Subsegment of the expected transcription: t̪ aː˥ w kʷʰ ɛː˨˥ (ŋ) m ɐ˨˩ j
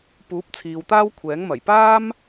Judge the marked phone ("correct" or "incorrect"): correct